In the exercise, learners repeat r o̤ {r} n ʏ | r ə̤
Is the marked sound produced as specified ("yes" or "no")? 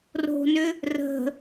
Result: no